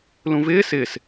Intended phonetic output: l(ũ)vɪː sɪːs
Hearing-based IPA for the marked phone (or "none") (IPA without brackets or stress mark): ũ